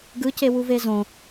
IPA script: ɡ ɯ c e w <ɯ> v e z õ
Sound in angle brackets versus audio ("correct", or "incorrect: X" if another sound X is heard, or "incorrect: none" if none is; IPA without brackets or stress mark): incorrect: u